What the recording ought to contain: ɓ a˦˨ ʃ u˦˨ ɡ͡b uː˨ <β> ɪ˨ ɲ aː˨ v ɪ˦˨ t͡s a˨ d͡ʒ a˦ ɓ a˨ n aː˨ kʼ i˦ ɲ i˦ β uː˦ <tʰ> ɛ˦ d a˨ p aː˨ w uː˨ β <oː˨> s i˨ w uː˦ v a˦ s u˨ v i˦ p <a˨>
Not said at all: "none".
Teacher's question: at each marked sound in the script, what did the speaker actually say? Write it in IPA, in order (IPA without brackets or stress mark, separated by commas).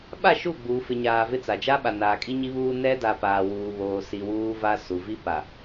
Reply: f, n, oː˨, a˨